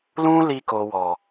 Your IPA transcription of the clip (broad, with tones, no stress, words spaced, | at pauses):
lũ˦li˧ko˨wɔ˨